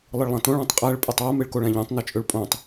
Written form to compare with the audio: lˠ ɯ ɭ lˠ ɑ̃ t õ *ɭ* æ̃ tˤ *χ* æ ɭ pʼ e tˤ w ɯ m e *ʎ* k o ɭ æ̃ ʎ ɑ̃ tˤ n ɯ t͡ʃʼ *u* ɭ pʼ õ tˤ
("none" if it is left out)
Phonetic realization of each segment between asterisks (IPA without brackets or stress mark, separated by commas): ɭ, qʼ, ɭ, ø